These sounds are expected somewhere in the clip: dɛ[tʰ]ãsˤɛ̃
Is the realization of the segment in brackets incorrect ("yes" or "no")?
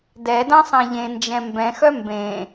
yes